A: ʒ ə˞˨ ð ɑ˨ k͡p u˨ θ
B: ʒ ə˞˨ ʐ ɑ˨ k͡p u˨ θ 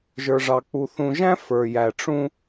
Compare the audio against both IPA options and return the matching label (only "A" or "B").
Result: B